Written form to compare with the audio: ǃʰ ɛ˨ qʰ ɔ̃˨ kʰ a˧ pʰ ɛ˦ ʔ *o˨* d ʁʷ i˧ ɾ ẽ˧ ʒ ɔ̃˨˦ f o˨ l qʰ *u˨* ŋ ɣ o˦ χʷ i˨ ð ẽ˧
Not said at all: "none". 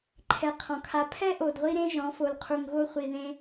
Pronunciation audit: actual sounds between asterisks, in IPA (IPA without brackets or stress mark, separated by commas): o˨, u˨